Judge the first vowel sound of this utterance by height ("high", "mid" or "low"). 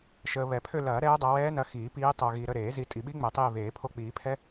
mid